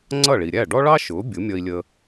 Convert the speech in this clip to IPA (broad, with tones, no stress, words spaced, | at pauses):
ŋ͡ǀʌ˥˩ ɭi˩ɾʲæ˥˩ ɖɔ˥ ɭɑ˥ ʃʊː˩˥ bʲʊ˩˥mʲʌ˧i̯lʲə˧